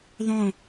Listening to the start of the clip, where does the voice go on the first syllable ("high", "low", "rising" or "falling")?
falling